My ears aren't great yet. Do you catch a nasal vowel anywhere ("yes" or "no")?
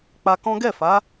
yes